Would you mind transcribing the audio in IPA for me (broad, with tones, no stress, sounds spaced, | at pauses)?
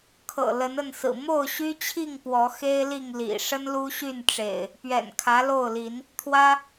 kʰ ɤ̰˨˩ l ə˨˦ n ə˥˨ n s ɹ̩˨˩ m o˥˨ ʊ̯ ɕ y˦ t͡ɕʰ i˥˨ ŋ p w ɔ˨˦ x e˦ ɪ̯ l i˥˨ ŋ l ḭ˨˩ ʂ ə˦ n l u˦ ɕ y˥˨ n ʈ͡ʂ ḛ˨˩ ɪ̯ | p ɥ ɛ̰˨˩ n kʰ ä˨˦ l o˥˨ ʊ̯ l i˨˦ n | t̪ʰ w ä˦